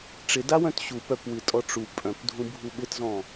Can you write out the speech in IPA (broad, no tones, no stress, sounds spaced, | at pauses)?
ʈ͡ʂ ɪ d a w œ̃ t ɕ u p œ p w ɨ tʼ ɔ ʈ͡ʂ u pʼ œ̃ p dʱ ũ bʱ u ɓ ɪ t z ɔ̃